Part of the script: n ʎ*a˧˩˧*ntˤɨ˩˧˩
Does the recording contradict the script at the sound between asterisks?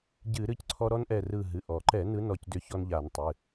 no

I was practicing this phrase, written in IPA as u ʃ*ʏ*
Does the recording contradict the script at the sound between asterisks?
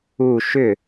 no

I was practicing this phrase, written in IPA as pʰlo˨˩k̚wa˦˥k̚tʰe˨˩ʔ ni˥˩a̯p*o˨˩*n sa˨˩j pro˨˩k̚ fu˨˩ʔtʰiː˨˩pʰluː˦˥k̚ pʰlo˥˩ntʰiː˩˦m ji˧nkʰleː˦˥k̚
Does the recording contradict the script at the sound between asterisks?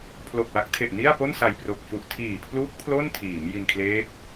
yes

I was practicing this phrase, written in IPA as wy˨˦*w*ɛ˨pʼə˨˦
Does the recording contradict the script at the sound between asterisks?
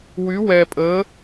no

